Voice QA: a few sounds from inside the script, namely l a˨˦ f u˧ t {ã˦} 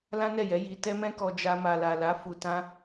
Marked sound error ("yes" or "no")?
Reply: no